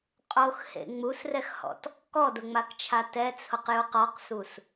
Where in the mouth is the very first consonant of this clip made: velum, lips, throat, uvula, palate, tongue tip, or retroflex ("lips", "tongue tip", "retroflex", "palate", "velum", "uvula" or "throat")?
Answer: uvula